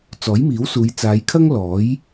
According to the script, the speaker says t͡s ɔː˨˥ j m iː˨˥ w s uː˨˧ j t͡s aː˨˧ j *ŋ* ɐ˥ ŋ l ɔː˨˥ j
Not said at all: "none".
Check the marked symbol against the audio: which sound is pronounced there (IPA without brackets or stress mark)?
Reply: kʰ